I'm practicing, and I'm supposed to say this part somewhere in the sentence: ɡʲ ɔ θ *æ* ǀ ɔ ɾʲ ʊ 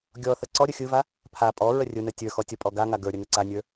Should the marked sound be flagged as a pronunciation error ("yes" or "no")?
yes